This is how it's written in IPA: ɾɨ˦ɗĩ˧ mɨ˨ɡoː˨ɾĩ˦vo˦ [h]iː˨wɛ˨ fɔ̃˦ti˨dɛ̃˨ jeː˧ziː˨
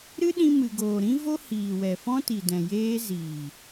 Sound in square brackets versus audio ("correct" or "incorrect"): correct